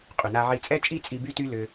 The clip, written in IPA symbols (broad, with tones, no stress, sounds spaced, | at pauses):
qʼ y˩ n a˧ ʕ i˧ t͡sʼ ɛ˥ t͡ʃʼ i˥ t͡sʼ i˧ b y˥ t y˥ l ʏ˧